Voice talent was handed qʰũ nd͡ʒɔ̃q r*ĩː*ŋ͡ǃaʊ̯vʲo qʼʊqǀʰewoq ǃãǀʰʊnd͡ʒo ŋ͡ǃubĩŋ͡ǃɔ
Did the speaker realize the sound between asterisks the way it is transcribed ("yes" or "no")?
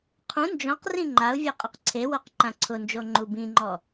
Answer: no